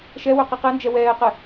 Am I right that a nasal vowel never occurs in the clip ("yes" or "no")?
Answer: yes